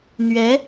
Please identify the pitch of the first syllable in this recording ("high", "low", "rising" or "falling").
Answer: rising